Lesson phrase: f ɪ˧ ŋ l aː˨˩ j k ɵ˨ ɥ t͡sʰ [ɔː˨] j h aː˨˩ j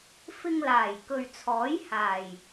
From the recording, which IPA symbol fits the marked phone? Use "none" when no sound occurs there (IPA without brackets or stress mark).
ɔː˨˥